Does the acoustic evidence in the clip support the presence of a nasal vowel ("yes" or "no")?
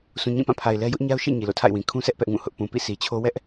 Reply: yes